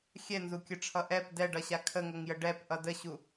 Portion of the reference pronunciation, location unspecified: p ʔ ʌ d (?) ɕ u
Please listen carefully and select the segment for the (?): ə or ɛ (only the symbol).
ə